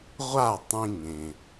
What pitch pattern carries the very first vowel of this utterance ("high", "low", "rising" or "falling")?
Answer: falling